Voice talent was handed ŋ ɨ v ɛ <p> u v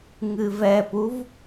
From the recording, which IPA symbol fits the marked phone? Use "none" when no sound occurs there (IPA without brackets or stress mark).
p